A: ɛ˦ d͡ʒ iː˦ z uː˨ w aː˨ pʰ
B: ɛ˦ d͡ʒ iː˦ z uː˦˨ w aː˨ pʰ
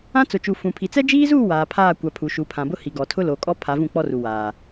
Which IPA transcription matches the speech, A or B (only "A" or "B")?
B